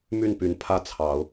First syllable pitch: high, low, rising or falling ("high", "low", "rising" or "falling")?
falling